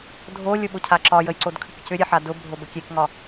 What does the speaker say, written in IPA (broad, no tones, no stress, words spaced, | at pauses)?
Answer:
dʱolʲʊ ɓʊcʰaǁɒjəj ǀodkʰʏkcʏɾʲe ħadʊbʱob əkʲekŋɒ